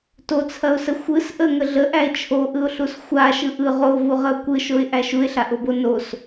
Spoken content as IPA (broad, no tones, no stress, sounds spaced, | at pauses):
t o t͡sʰ ɐ ʊ̯ s ə xʷ ɯ s ʔ ə ŋ ə ɮ ə ʔ æ ɪ̯ t͡ʃʰ o ʔ ɯ ʊ̯ ɬ u s xʷ a ʃ ɯ ʔ ɯ ʁ o v u ʁ ə ʊ̯ kʷ ɯ ʃ o ɪ̯ ʔ æ ʃ u ɪ̯ ɬ a ʔ o b o n o s